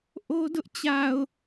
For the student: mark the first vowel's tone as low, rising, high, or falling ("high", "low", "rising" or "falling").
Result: high